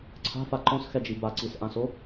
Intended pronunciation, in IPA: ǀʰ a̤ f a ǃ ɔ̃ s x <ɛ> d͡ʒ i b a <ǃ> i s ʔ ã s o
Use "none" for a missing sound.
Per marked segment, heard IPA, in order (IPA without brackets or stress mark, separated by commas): ɛ, ǀ